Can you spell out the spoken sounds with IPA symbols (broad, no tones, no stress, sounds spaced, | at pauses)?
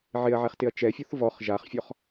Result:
ʕ ɪ ɐ̯ ʕ ɛ χ t ɪ ɐ̯ t͡ʃ ɛ fʲ ɔ θ v ɔ χ ʒ a χ fʲ ɔ χ